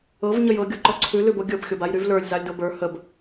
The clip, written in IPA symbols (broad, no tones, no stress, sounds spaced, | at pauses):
ɤ v ɲ ə j ɤ ɡʲ o ǃ ɔ ǀʰ ʉ l ʉ b o ɡʲ ɤ b xʲ o b a j ɾ y v l ə˞ lʲ z a lʲ d o b ə˞ h ə b